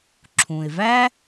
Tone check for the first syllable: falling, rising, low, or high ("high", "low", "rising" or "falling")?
low